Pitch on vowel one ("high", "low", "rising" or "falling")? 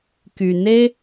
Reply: low